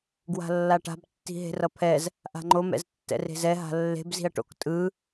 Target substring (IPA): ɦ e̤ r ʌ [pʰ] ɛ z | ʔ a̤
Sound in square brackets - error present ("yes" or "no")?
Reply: no